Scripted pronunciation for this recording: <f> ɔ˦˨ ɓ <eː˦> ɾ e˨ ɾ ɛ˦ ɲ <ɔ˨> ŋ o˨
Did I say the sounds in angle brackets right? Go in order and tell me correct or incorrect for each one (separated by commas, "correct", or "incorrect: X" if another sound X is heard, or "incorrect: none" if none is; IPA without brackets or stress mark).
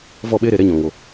incorrect: v, correct, incorrect: ɔ̃˨